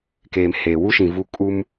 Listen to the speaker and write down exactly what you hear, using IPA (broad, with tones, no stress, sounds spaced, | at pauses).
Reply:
k eː˨ m h eː˨ w u˦ ʃ ĩ˨ v u˦ kʼ u˦ m